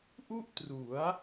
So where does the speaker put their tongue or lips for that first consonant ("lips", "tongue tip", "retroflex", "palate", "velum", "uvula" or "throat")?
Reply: throat